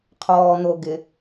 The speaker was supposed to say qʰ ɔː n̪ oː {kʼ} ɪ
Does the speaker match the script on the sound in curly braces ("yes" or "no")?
no